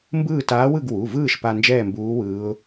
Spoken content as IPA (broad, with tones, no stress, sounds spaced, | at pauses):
m b ɯː˥˨ t aː˧˥ w ɯ˥˨ ɡ w u˩˧˩ v ɯː˥˨ ʃ p a˧ n d͡ʒ ɛː˥˨ m b uː˧˥ w ɯː˧˥ ʊ̯